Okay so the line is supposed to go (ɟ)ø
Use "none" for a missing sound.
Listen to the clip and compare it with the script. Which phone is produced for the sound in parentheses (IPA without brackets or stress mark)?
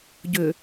ɟ